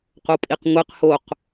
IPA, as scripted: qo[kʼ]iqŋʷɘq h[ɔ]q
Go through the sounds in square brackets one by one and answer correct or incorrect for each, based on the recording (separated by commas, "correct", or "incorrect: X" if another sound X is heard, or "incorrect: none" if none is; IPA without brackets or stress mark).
incorrect: pʼ, incorrect: o